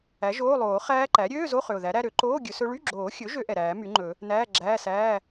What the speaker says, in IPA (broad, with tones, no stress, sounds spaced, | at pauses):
æ˩˥ ʒ oː˧˥˧ lˠ oː˨˩˦ χ æː˦˥ ǃ æ˩˥ ɾʲ øː˧˥˧ z o˧˥˧ χ ø˨˩ ʊ̯ ð æ˩˥ ɾ æ˧˥˧ ɾ ø˩˥ ǃ oː˧˥˧ ɡʲ ɵ˨˩˦ s ɵ˦˥ ɭ y˧˥˧ ɡ͡ǁ oː˨˩˦ xʲ ɵ˩˥ ʒ ø˦˥ ʔ ɛ˨˩ ɾ æː˨˩˦ m y˩˥ ŋ͡ǃ ɵ˨˩˦ | n æː˧˥˧ ɡ͡ǁ æː˧˥˧ s æː˧˥˧